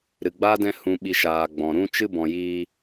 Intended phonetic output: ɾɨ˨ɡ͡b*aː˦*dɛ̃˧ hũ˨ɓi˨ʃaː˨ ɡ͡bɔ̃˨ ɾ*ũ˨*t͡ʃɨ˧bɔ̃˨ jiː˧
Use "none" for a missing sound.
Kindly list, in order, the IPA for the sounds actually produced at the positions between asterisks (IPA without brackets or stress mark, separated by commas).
aː˦, ũ˧